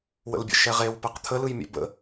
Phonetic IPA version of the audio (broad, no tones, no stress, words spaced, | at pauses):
wə̰lbʲə̰ʃɛʁew pɛqt̪ʰəlɯjmʲɛ̰ bə̰